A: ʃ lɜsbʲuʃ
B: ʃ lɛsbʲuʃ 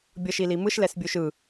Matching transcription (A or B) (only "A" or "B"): B